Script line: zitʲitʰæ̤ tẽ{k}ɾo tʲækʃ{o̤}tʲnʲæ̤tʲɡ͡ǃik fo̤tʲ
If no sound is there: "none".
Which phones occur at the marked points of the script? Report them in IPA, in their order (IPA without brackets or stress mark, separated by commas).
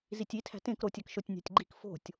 k, o